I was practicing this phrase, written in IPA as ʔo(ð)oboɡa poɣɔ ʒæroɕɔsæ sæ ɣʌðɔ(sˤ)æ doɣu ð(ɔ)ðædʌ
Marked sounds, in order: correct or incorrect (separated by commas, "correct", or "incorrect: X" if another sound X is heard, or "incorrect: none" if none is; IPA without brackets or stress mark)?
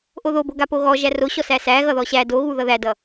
correct, incorrect: ɕ, incorrect: ʌ